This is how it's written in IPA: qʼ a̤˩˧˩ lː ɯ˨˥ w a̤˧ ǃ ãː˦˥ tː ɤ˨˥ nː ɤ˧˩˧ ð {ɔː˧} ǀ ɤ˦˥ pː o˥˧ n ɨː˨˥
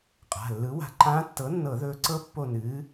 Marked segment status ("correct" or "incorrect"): incorrect